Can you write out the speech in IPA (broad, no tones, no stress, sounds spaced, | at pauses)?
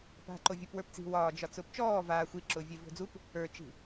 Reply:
p a̤ ǃ o vʲ ʊː p w ə˞ p t͡s i̤ w ɒː d͡ʒ ɒ t͡s ʊː p t͡ʃ ɔː v aː xʷ i ǁ ʊː vʲ ɛ v o̤ d͡z u p | ə˞ t͡ʃ i̤